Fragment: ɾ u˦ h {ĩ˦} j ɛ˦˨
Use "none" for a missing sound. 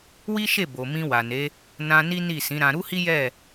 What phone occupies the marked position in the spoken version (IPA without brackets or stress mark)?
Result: i˦